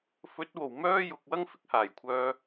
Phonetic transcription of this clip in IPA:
f ɵ˨˥ t̚ w o˨˩ w m œː˥ j ʊ˨ k̚ w ɐ˥ ŋ f ɪ˧ k̚ h aː˨˩ j kʷʰ œː˧

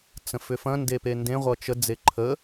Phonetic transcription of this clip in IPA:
t͡s ə̃ f ʏ f ɐ̃ n d e p e n d ẽ ʁʷ ʌ t͡ʃ ə d͡z e ǃʰ ə

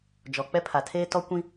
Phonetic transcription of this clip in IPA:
d͡ʒ ɔ˨ k͡p ɛ˦ pʰ a˨ tʰ eː˦ t ɔ˦ kʷ ĩ˦

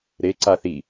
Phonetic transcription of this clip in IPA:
ɾ e ǀ a θ i

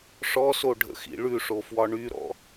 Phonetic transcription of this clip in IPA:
ʂ ɔ s o ɖʱ ə̰ x ḭ ɭ ʉ ʂ o f w ɒ ɳ y ɾ ɔ̰

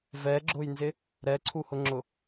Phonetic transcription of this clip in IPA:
v ɛ ɡ͡ǁ ʊ j n z ɪ | ɾ ɛ ǀʰ u h ʊ ŋ͡ǁ ʊ

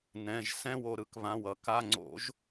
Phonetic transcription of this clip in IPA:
n ɛ̃˩˧˩ ʒ s ɛ̃˥˧ w o˧˩ ɾ ɯ˥˧ k β ã˩˧˩ w ʌ˧˩˧ k a˩˧˩ ŋ͡ǀ o̰˧˩˧ ʒ

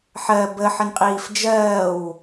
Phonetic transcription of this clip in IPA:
ħ ɜ b ə ħ ə n qʼ iː f d͡ʒ ɜː w

